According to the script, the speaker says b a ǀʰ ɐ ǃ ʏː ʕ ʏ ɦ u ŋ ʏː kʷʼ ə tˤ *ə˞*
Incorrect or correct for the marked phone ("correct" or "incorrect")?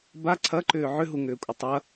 incorrect